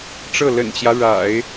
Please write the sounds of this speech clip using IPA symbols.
ʈ͡ʂ ɤ˥˩ l ə̰˨˩ n t͡ɕ j ä˦ ɻ a̰˨˩˦ ɪ̯

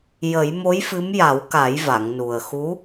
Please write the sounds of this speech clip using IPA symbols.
j ə˨˩˦ j m o˧˥ j f ɨ˧˥ m j a˨˩˦ w k a˨˩˦ j v a˨˩˨ ŋ n u˨˩ ə̯ x u˧˥

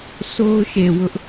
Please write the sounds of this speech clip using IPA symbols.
s o˦ ʊ̯ ʃ e˨ w ʊ˦ ʔ

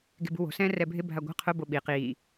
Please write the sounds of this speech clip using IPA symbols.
ɡ e̤ b ṳ w o̤ s ɛ̃ː r ɛ bʱ ɪ bʱ a ɡʷ a̤ qʰ ʊ b o ɓ i q iː

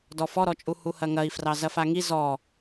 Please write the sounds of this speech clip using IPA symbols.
d ɔ f ɔ ɾ ɔ t͡ʃʼ u h u h ɐ ŋ ɐ i̯ f r ɑ z ɐ f a ŋ i z ɔ

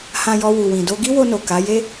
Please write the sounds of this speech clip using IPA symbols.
h ã˧ j ɔ˧ w u˨ w ĩ˨ d o˧ ɡ i˦ w o˧ n o˨ k a˨˦ j e˦

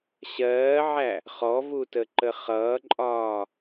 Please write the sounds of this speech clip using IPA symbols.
ɕ ɜː ʕ æ | χ ɔ v u t ə ǃ ə χ ʌː ǃʼ ɒː

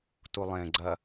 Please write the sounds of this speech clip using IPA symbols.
t u lˠ ẽ ɡ͡ǀ ɐ

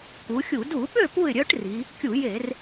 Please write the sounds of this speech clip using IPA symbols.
k u˩˧ xʲ u˧˩˧ d u˧˩˧ ɓ ø˥˨ p u˥˨ ɪ̯ ɾʲ œ˦˥ ʈ r i˩˧ | kʲ u˧˩˧ j e˧˩˧ r

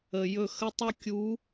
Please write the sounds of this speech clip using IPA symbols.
ə˨ j ɵ˦˨ x ə˦ tˤ o˦ kʲ u˨˦

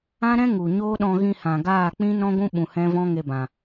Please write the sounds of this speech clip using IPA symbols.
ã˦ ɾ ɛ̃˦ ŋ u˨ ɲ oː˦ ɗ ɔ̃˧ ɣ ĩ˧ h ã˨ ɡ aː˦˨ k͡p ĩ˦ n ɔ̃˦ ɡʷ ũ˦ ɓ ũ˨ h ɛ̃˦ v ɔ̃˦ ŋ e˧ b ã˨

